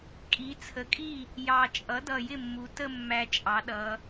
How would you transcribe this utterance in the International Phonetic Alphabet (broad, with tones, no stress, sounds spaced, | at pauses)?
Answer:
kʼ i˩˧ t͡sʰ ə˩˧ kʼ i˥˩ | j ɑ˨˩ t͡ʃʼ ʌ˩˥ d ʌ˨˩ j ɪ˥˩ mː u˩˧ t ə˥˧ mː æ˧ t͡ʃʼ ɑ˩˧ ɗ ʌ˩˧